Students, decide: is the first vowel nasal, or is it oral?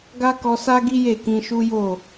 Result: oral